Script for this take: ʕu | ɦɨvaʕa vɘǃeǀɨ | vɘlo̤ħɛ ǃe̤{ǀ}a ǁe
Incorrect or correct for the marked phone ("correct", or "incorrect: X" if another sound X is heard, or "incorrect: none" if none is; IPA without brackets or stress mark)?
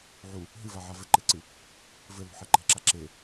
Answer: incorrect: ǁ